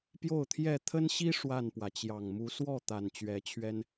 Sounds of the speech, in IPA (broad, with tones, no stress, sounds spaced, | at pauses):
p j o˥˨ ʊ̯ t̪ʰ j ɛ˥˨ t̪ʰ ə˦ n ɕ i˦ ʂ w a˥˨ n p w ä˩ t͡ɕ j ɑ˨˩ ŋ m u˨˦ s w ɔ˥˨ t̪ a˨˩ n t͡ɕ ɥ ɛ˨˦ t͡ɕʰ ɥ ɛ˦ n